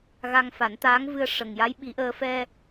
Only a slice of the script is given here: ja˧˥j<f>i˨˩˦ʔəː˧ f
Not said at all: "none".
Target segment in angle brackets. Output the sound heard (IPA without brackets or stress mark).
ɓ